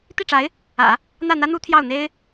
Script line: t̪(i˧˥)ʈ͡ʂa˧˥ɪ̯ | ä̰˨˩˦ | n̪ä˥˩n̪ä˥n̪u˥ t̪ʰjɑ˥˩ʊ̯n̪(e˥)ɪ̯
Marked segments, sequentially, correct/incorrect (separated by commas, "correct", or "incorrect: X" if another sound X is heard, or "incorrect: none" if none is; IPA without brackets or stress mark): incorrect: i˥˩, correct